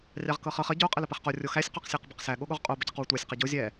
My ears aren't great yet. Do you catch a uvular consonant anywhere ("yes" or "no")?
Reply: yes